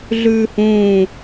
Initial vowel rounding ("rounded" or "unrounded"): rounded